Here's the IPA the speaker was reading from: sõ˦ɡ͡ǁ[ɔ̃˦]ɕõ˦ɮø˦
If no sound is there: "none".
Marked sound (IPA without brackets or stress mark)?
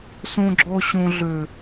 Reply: ɔ˦